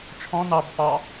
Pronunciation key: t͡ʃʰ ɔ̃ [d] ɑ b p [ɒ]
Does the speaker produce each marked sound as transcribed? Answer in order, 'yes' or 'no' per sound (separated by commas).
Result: no, no